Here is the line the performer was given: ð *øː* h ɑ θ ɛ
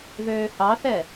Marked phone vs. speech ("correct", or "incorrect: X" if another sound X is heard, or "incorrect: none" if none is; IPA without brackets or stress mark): correct